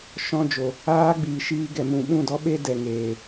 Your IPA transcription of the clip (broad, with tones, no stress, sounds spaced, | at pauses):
ʃ ɔ̃˧ d͡ʒ o˨ | aː˦ ɡ͡b iː˨ ʃ iː˧ ɡ ɛ˨ m ũ˨ ɓ ũ˦˨ d ɔ˦ ɓ e˦ d ɛ˨ ŋ eː˨